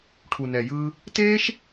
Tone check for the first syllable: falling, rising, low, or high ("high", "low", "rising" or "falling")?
low